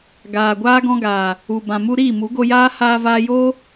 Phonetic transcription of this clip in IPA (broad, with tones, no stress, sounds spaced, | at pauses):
ɡ aː˨ ɡʷ aː˦ ɡ ɔ̃˧ ɡ aː˨ | u˨ b ã˨ m u˧ ɾ iː˦˨ m u˨˦ ɡ o˧ j aː˦ h aː˧ v aː˧ j oː˦